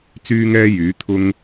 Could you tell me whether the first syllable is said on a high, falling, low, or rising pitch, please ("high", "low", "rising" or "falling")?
high